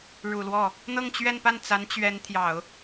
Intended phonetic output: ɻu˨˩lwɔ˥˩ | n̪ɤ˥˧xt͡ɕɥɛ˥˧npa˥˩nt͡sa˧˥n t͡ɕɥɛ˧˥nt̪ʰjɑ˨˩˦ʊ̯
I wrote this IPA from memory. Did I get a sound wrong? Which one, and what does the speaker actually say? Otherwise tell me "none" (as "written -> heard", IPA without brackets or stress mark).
x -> ŋ